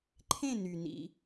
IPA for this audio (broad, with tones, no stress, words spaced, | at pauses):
ǃʰẽ˦˨ny˩ nḭ˩